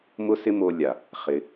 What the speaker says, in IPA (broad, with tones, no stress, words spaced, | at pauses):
mʊ˦sɪ˦mo˧lʲa˨ | χɪ˧